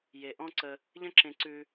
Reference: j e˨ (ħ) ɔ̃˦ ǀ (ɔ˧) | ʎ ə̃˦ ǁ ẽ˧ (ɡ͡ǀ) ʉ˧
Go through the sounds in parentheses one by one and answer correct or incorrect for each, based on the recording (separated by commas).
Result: incorrect, incorrect, incorrect